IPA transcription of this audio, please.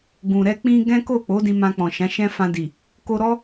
ɡ ũ˨ ɾ ɛ˧ k͡p ĩ˧ ɡ ɛ̃˦ k o˦˨ k͡p o˨˦ d ĩ˧ m ã˧ k͡p ɔ̃˨ ʃ ã˨˦ ʃ ɛ̃˦ f ã˧ d i˨ | k o˧ ɾ ɔ˦

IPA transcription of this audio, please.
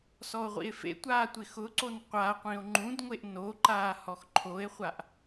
s ɔ o̯ ʁʷ ḭ e̯ f ḛ tʷ aː tʷ ɪ x ʊ ǀ o n qʷ a qʷ ĩ o̯ ŋ͡ǃ ũ d ŋʷ e ʔ n o ǃ aː h ɔ x ǃʰ o e̯ χʷ a ʔ

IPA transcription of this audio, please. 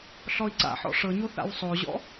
ɬ ɔ i̯ ǀ a̰ ħ ɔ̰ ʂ ɤ ɲ o θ a̰ w sˤ o ʑ ɔ̰

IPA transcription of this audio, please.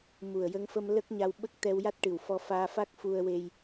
m u˨˩ ə̯ j ə˧ ŋ f ə˧ m l ə˦˥ k̚ ɲ a˧ w ɓ ə˦˥ k̚ t̪ ɛ˧ w j a˦˥ t̚ ʈ ɨ˨˩ w f ɔ˧ f aː˧ f a˦˥ k̚ f u˧ ə̯ w e˧ j

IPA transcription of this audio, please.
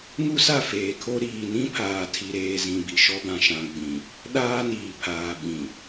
ŋ u˦ s a˦˨ f eː˨ kʰ o˦ ɾ iː˨ n ĩ˦ pʰ aː˨ tʰ i˨ ɾ eː˨ z ĩ˨ b i˨ ʃ ɔ˦ b ã˨ ʃ ã˨ ɡ͡b ĩ˨ | ɗ aː˦ n iː˨ pʰ aː˨ ɓ ĩ˨

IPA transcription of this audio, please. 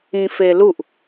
ĩ f e l u ʔ

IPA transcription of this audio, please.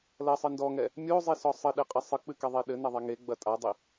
l ɐ sˤ ɨ n d ɔ ŋ ɛ | mʲ o zˤ i s ɔ sˤ ɘ ɗ e qʼ ɘ sˤ ɨ k͡p ɨ k ɛ ðˤ e ɗ ɘ n ɐ ðˤ ɛ ŋ e ɡ͡b ɐ tʼ a dˤ i

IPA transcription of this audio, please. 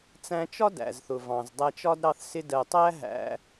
t͡s æ̃˧ t͡ʃ ɒ˦ d æ̰˨ z θ ʊ˨ v ɑ̃˨ z dˤ æ˧ t͡ʃ ɒ˦ d ɾ ɑ˧ θ s ɪ˧ d ɜ˨ tˤ æ˦ ɦ æ̰˧

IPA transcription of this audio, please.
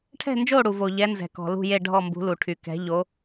ʈʰ ɛ̤˥˩ n d͡ʒ o˥˩ ɽ u˩ v o˩ ʎ ɛ˩˥ n z ɛ̤˩ k ɔ̤˩ l ṳ˥˩ j e˥˩ ɖʱ ɔ˥˩ m b ṳ˩˥ l u˩ ʈʰ y˩ k ɛ̤˩˥ ʎ o˩˥

